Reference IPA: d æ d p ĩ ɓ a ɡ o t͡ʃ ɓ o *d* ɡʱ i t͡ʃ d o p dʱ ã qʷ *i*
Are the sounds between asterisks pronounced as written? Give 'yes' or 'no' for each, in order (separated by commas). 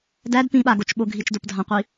no, yes